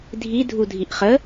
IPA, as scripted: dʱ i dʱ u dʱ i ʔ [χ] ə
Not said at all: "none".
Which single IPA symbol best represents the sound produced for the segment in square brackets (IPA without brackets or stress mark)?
χ